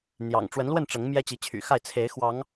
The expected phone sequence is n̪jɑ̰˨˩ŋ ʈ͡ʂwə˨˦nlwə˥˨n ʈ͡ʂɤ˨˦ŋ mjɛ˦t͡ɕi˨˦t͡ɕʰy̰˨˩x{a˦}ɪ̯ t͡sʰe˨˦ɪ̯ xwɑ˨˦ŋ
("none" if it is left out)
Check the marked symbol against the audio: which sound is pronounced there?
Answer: a˥˨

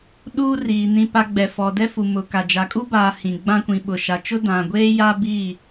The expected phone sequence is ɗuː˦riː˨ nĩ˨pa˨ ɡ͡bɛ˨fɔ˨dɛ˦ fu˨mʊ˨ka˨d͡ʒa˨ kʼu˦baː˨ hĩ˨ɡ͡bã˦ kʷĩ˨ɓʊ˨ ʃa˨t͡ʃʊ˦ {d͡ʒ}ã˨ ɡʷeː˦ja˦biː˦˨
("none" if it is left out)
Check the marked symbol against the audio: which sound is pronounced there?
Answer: d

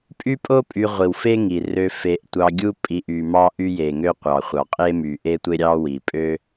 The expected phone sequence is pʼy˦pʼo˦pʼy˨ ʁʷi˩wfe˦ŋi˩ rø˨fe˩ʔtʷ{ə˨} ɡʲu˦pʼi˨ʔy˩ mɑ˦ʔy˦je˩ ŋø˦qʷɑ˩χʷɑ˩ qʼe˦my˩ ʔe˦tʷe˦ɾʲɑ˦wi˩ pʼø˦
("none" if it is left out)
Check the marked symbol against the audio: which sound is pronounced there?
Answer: ɑ˨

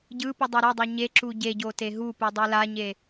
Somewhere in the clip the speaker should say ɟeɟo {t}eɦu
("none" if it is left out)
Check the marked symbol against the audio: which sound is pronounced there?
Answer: t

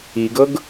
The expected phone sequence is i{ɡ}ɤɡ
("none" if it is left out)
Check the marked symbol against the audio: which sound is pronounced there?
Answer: ɡ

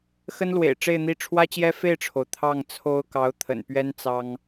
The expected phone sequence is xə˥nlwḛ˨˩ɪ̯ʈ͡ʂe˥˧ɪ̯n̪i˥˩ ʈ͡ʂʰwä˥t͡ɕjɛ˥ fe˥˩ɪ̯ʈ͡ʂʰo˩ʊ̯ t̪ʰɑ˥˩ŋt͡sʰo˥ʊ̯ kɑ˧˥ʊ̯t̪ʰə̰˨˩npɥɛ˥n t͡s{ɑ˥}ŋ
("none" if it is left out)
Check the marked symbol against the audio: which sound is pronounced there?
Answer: ɑ˥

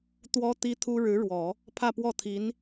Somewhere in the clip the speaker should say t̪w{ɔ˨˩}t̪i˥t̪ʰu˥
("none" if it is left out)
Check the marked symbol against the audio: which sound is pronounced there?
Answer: ɔ˥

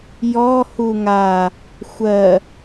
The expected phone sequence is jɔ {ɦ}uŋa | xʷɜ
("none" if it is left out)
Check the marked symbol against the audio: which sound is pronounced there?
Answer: h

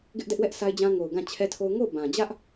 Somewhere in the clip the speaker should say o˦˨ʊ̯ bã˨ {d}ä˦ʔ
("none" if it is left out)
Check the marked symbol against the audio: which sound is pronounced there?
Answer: d͡ʑ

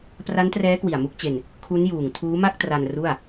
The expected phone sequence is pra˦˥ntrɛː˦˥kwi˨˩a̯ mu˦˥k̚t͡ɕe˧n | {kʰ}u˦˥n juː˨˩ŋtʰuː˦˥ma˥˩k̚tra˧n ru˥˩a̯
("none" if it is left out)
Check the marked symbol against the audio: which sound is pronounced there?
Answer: kʰ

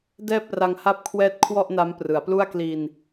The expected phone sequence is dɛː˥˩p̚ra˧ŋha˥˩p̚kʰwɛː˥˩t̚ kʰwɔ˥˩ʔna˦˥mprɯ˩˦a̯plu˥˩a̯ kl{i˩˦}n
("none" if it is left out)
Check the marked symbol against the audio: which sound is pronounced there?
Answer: i˧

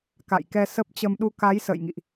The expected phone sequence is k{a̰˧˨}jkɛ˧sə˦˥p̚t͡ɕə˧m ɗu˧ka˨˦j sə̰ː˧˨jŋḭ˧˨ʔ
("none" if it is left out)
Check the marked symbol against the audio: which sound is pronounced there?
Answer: a̰˧˨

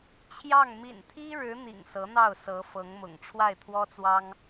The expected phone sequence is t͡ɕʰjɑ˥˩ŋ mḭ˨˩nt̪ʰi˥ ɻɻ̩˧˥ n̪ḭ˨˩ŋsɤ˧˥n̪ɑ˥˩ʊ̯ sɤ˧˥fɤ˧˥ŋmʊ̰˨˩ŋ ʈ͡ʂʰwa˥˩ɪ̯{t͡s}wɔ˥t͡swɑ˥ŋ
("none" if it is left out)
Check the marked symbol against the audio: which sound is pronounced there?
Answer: t̪ʰ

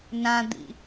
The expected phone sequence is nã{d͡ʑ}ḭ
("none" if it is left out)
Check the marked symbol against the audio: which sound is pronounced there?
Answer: d̪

